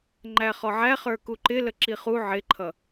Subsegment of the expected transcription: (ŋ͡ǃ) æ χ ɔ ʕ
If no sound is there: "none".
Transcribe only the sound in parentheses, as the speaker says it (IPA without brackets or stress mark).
ŋ͡ǃ